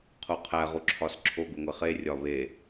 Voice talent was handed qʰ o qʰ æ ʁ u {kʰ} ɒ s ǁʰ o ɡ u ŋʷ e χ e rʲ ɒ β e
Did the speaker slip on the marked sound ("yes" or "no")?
yes